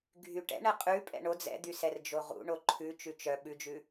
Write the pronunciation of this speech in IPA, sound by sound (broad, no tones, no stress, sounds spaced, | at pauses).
ɡʱ y ʈ ɛ̰ ɳ ɛ qʼ ʉ pʼ ɛ̰ ɳ o d͡z ɛ̰ d̪ y s ɛ r d͡ʒ o ʁ ṵ ɳ o ǃʰ ʉ t͡ʃ ʉ t͡ʃ œ ɓ ʉ d͡ʒ ʉ